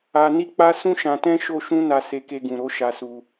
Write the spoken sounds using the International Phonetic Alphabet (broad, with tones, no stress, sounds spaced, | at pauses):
a˧ n i˦ k͡p a˦ s ũ˦ ʃ ã˧ t ɛ̃˦ ʃ o˦ ʃ ũ˦ n a˧ s e˧ k e˧ ɡ ũ˨ ɾ o˨˦ ʃ a˧ s u˧